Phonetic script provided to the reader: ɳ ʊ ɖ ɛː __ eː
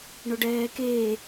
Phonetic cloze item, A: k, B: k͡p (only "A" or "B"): A